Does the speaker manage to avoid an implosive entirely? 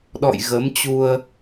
no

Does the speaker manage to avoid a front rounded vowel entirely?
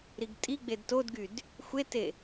no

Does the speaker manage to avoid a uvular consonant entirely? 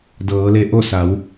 yes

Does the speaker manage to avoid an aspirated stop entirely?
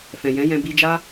yes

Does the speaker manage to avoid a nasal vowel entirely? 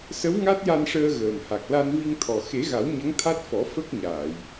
yes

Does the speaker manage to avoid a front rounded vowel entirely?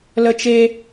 yes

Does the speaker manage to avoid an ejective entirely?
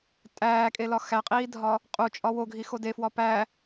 no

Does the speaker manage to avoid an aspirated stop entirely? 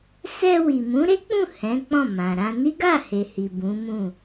yes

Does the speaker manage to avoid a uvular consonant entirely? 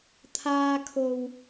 yes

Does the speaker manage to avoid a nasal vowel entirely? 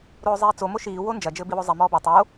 yes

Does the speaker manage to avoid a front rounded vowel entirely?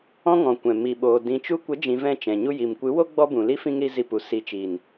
yes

